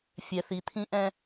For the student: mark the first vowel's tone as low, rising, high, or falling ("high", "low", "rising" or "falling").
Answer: low